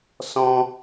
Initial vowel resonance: nasal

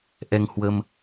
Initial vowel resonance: oral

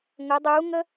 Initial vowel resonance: oral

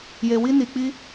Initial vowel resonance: oral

